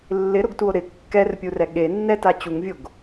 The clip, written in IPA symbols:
lː ɪ ɾ ʊ ɡ t u o̯ ɾ ɪ kː ɛ r pʲ u r ɛ ɠ e nː ɛ t a t͡ɕ u ŋ vʲ o ɡ

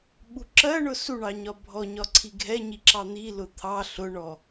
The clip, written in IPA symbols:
ɓ u ǁ ɜ ɳ ʊ s u ɳ ɑ ɲ ɒ bʱ ɔ ɲ ɒ ǀʰ i ɡʱ ɛ ɲ i ǁ ɑ n̪ i l ʊ t̪ʰ ɑ ɬ ʊ ɳ ɔ

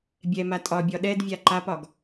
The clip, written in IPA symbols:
bʲ ɛ m a tʼ ɒ bʲ ɒ ɗ ɛ d vʲ a ǃ a p ɒ ɡ

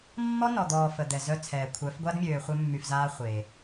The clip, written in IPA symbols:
mː ɔ˦ n ɔ˨ d̪ ɔː˨ f ə˨ d̪ ɛ˨ z œ˦ t͡sʰ ɛː˨ kʷʰ œ˨˦ f ɡʷ a˦ d mʲ øː˨ χʷ œ˦ mː y˨ f z aː˦ χʷ e˨

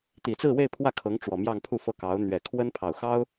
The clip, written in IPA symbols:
t̪ i˨˩ t͡s ɹ̩˥˧ w e˥˧ ɪ̯ pʰ w ä˥˩ kʰ ɤ˧˥ ŋ ʈ͡ʂ w ɔ˨˩ m j ɑ˥˧ ŋ pʰ u˥˧ f ɤ˥˩ k ɑ˧˥ ʊ̯ n̪ ɥ ɛ˨˩ kʰ w ə˥ n pʰ ɑ˨˩ ʊ̯ x ɑ˥ ʊ̯

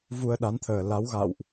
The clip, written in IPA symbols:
v u˧ ə̯ ɗ a˨˦ n t̪ʰ əː˨˩ l a˨˦ w ɣ a̰˧˨ w ʔ

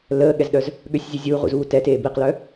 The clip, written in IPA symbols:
l əː ɠ ɛ z ɗ œ z | ɠ ø sʲ zʲ u zʲ uː ʁ ṵ z uː t ɛ t eː b i q l œ

